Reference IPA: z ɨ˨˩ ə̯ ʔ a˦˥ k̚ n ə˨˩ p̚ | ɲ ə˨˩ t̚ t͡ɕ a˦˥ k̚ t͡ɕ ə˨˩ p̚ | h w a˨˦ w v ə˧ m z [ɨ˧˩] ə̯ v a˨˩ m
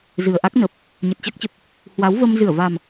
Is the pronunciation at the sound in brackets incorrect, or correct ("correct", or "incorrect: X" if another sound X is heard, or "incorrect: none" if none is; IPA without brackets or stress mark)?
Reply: correct